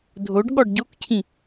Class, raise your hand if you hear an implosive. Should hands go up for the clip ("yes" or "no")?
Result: yes